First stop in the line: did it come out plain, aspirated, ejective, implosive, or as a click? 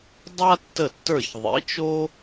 plain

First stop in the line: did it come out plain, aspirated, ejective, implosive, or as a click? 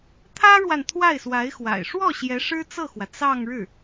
aspirated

